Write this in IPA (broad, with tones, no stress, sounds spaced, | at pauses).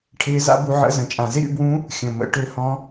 ʈʰ ɪː˧˥ z a̰˧˥ b u˧ ʕ ə̰˧˥ z ə̃˩ t͡ʃʼ ã˩ z ɪ˥ ɾʲ ṵ˧ b w ũ˧˥ | xʲ ə̃˩ m ə̰˩˧ ʈ ø˧˥ h ɔ̃˧˥